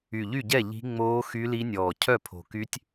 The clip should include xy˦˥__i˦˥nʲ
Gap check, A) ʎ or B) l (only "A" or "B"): B